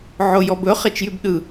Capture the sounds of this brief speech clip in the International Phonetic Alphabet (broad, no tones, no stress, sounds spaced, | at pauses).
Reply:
ʕ o j ɔ b ɵ χ e t͡ʃ j y b ɗ ɯ